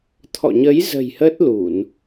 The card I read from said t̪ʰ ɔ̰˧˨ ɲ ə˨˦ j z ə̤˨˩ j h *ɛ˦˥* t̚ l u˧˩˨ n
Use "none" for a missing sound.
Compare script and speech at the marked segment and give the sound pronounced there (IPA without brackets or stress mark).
ə˦˥